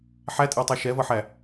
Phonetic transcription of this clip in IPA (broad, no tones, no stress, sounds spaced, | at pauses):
ħ æ tʼ ɪː tˤ æ ʃ ɛ v ʌ ħ æ